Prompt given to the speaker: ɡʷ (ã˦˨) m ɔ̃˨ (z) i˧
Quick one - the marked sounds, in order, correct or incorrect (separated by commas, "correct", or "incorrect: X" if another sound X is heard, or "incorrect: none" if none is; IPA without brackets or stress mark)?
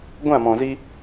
correct, correct